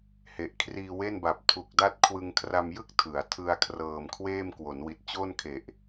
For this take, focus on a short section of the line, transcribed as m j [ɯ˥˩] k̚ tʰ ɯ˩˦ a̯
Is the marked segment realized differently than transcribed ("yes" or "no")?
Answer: no